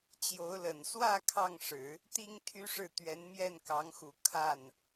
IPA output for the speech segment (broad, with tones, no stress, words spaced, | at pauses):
t͡ɕjo˧˥ʊ̯lə˨˩n swä˥˧ kʰɑ˥˩ŋʂɻ̩˨˩˦ | t̪i˥ŋt̪ʰy˥ʂɻ̩˥˩ t̪ɥɛ˧˥nmjɛ˥˩nkɑ˧˥ŋxu˨˩ kʰa˥˩n